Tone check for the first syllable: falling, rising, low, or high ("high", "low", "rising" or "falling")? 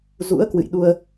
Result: rising